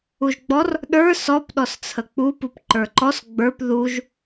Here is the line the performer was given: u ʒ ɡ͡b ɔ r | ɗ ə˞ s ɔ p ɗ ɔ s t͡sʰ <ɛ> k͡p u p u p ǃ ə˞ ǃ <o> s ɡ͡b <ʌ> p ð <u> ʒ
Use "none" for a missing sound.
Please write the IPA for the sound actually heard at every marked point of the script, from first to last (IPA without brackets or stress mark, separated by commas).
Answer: ə, ɔ, ə˞, u